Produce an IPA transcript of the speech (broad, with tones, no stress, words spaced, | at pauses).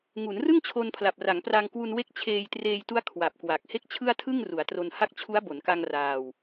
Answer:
ŋu˩˦nrɯ˥˩ŋ t͡ɕʰo˧npʰla˨˩p̚ra˩˦ŋpra˧ŋ kwu˧nwe˦˥k̚t͡ɕʰeː˧jtreː˧j tu˦˥a̯ kʰwa˨˩p̚kwa˨˩k̚ he˥˩k̚t͡ɕʰɯ˥˩a̯tʰɯ˥˩ŋ ru˩˦a̯tro˧nha˥˩k̚ t͡ɕʰu˦˥a̯bo˩˦nka˧ŋ raː˧w